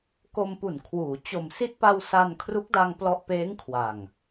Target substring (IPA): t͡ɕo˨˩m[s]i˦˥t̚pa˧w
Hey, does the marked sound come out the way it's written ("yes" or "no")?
yes